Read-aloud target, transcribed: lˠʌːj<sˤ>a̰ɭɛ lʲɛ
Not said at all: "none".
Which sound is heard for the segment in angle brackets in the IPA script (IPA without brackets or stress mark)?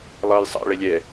sˤ